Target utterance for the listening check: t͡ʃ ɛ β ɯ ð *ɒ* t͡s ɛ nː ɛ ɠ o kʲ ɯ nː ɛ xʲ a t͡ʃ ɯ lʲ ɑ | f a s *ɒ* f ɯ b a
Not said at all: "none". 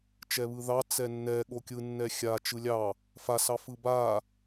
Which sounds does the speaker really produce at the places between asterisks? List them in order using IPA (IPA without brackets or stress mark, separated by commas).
ɑ, ɑ